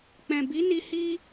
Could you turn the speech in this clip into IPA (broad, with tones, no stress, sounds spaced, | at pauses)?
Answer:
k͡p ɛ̃˨ b i˨˦ n i˧ h i˧